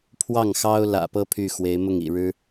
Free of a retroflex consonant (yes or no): no